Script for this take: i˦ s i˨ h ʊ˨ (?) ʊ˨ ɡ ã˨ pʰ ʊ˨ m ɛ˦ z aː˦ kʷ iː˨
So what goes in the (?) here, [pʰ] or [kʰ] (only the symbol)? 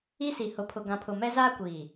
pʰ